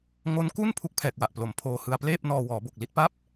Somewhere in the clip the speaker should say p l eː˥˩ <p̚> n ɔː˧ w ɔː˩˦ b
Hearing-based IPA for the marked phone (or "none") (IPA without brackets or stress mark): p̚